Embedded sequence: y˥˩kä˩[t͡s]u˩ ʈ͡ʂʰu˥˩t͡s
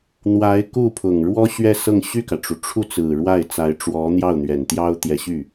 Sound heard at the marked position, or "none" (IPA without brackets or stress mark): ʈ͡ʂ